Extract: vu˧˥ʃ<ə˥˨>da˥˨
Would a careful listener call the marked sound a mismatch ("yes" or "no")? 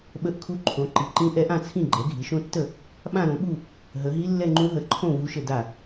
no